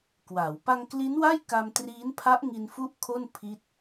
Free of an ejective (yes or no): yes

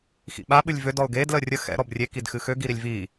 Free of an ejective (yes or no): yes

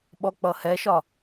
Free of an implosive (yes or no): no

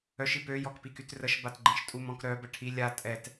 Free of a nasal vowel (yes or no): no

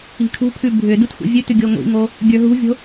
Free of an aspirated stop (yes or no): no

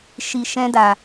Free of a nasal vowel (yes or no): no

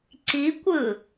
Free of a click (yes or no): no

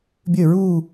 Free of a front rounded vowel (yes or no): no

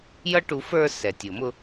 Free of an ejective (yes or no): yes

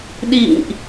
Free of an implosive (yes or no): no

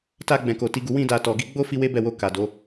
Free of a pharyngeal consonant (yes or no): yes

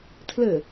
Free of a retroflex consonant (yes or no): yes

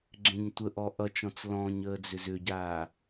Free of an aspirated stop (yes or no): yes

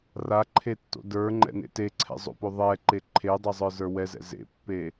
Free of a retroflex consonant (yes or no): yes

